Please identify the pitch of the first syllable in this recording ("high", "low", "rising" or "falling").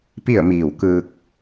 falling